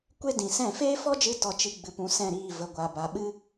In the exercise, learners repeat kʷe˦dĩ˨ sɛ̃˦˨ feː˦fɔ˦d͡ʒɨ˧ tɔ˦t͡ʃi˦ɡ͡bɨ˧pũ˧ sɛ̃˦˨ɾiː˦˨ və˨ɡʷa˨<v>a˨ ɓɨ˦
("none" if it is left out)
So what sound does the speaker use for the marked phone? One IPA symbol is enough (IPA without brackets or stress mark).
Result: b